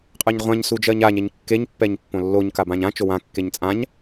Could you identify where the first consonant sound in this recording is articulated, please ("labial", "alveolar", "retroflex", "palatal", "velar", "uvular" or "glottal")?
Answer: uvular